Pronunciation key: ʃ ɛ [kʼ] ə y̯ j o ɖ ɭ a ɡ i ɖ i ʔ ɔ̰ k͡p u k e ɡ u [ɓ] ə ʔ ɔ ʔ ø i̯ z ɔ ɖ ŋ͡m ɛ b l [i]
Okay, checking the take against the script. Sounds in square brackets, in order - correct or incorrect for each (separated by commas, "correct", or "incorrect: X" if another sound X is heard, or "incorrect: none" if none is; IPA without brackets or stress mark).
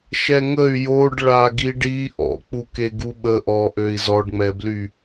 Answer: incorrect: ŋ, correct, incorrect: y